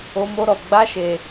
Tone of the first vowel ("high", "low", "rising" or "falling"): high